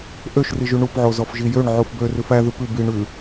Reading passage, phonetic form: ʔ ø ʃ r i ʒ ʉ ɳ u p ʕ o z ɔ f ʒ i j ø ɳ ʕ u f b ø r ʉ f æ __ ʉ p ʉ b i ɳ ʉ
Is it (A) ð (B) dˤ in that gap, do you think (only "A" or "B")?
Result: A